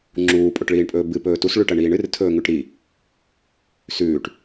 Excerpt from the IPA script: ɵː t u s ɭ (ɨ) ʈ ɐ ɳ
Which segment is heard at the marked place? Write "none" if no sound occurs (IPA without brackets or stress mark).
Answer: ʉ